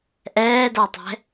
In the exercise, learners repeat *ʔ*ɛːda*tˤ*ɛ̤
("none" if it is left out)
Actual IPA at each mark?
ʔ, tˤ

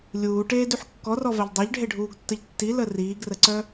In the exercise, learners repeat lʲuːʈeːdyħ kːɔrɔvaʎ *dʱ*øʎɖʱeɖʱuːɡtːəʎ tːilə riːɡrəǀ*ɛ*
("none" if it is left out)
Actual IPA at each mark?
dˤ, œ

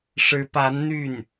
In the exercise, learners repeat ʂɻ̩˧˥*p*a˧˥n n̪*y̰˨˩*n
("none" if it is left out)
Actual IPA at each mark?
p, y˥˩

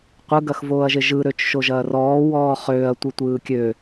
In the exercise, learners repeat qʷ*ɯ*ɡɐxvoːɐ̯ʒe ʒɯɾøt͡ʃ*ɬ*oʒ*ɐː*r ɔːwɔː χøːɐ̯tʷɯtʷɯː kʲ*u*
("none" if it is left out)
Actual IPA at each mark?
ɯ, ʃ, ɐː, ø

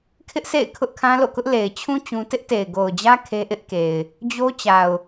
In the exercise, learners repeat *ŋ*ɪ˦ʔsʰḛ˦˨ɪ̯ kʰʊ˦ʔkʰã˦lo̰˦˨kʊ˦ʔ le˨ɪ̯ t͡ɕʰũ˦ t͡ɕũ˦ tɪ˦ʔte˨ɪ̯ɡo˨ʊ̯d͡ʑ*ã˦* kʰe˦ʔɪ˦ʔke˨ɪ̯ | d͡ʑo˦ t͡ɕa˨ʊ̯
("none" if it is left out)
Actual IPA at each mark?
kʰ, ä˦

